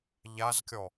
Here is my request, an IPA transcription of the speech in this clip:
ʎ a z kʲ ɔ

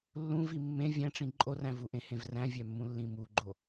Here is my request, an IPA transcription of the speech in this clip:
lː ũ v i mː ẽ vʲ æ̃ ʈ͡ʂ ĩ ǃʼ o r æ̃ v u ʔ ẽ h ẽ v r æ̃ vʲ æ mː ũ lː ĩ m u ɡ͡ǃ o

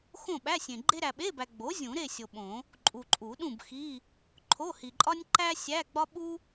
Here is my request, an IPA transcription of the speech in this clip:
x õ˥˨ ɓ æ˧˥˧ sʲ ẽ˨ ɡ͡ǃ e˥ ɾ æ˨ ɓ e˧˥˧ b æ˨ ɡ͡b o˩˥ zʲ ũ˨˩˦ ɾ e˥˨ sʲ o˨ ɓ õ˨˩˦ | ǃʼ u˨ ǃʼ u˨˩˦ ɗ ũ˥˨ b x i˧˥˧ | ǃʰ o˧˥˧ h i˨ ǃʼ ɒ˥ nʲ ǃ æ˥ sʲ æ˧˥˧ ɡ͡b ɒ˥ ɓ u˥

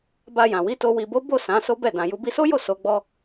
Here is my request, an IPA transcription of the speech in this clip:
b a˧ j ã˨ w i˨˦ t o˧ w i˨ b o˨˦ b o˦˨ s ã˨˦ s o˦ b ɛ˦˨ d ã˨ j u˧ b i˧ s o˦ j o˦˨ s o˨˦ ɡ͡b ɔ˧

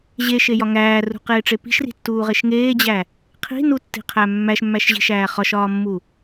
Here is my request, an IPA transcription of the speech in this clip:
ʑ e ʃ e j ɒ ŋ æː r ṳ q eː ʈ͡ʂ e p i̤ ʃ r i̤ tː uː ʁ e ʃ ŋ eː d͡ʑ æ | qʰ i̤ n u tː i̤ qʰ æ mː æ ʃ mː æ ʃ ʑ i̤ ʃ æː χ ɒ ʃ ɒː mː u

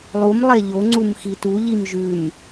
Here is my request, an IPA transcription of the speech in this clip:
lˠ u m lˠ e ʎ o ŋ͡ǀ u m x i t u ʎ i m ʒ ʉ m

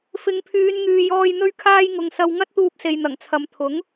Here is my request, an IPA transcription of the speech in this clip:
f ɪ˨˧ ŋ pʰ yː˨˧ n ŋ yː˨ j ɔː˧ j n̪ ɵ˧ ɥ kʰ aː˧ j ŋ ʊ˨ ŋ s ɐ˧ w ŋ ɐ˥ t̚ t̪ uː˧ p̚ s e˨ j n̪ ɐ˨˩ ŋ t͡sʰ ɐ˨˧ m t̪ʰ ʊ˨˥ ŋ

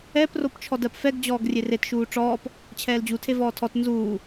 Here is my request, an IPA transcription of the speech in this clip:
ɛ p r o p t͡ʃʰ ɔ d ɜ p f ɛ ɡ d͡ʑ ɔː ɡ rʲ e r e t ʃ uː ʈ͡ʂ ɔː p | t͡ɕʰ ɛː l d͡ʑ u tʰ e v ɔː tʰ ɔ t n z uː

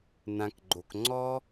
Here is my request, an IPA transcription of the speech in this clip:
n ã˨ k ɡ͡ǃ o˨ k ŋ͡ǀ ɔ˦

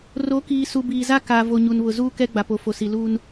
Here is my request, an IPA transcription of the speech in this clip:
r o˨˦ k iː˨ s u˨ b iː˨ z a˦ k a˨ v o˨ ɲ u˨ n β ʊ˨ z uː˦ k ɛ˦ ɡ͡b a˨ p o˨ f o˨ s i˨ l uː˦ n

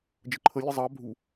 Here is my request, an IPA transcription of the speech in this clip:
d͡ʒ ə ǃʰ ə lʲ ə zˤ ɑ bʱ u

